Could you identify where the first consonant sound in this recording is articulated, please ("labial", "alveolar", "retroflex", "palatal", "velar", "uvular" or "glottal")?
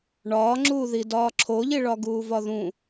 retroflex